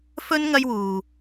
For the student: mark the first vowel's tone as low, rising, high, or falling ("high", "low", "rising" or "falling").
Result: high